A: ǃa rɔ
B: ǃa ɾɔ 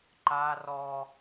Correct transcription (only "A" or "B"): A